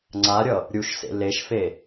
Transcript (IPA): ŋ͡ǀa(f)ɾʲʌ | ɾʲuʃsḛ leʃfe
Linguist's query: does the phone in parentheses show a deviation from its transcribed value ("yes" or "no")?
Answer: yes